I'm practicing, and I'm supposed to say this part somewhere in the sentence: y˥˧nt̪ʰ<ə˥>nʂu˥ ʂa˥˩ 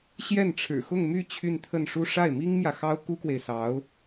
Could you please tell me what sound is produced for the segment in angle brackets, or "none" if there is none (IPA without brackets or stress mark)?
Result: ə˥˩